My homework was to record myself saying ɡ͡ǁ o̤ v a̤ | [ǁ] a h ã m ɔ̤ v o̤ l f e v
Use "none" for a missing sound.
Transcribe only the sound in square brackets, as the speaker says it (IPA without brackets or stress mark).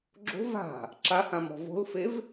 ǁ